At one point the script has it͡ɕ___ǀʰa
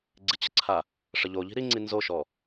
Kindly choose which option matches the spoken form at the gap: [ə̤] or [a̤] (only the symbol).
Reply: ə̤